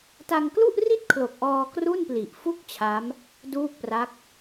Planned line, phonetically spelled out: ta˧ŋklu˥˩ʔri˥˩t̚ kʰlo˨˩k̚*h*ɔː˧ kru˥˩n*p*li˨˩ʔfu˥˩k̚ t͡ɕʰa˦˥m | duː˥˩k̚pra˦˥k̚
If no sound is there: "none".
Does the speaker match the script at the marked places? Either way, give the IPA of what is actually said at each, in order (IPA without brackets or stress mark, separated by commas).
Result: ʔ, p